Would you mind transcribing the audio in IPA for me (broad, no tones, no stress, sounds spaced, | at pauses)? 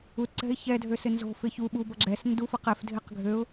u t ǀ ɛ̤ ɪ̯ ç ɛ dʱ ø s ɪ n z o̤ f ɪ ç u ɓ u b ʌ ɡ͡ǁ ɛ s n d u f ʌ q ɛ f dʱ ɪ q ɡʱ ø ʊ̯